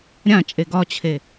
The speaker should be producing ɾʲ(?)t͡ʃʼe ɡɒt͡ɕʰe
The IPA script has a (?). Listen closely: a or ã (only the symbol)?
ã